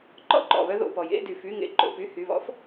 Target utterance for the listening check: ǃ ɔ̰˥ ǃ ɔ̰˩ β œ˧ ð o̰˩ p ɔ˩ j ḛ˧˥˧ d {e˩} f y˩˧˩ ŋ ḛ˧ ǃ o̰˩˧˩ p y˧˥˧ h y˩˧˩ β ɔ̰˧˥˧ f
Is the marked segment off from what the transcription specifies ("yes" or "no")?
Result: yes